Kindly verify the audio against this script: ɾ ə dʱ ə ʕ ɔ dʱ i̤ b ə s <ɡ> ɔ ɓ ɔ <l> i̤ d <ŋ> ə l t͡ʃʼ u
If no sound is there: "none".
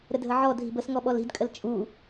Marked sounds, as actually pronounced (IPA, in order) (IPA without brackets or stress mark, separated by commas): ŋ, l, kʼ